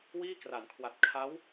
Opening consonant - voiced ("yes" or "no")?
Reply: yes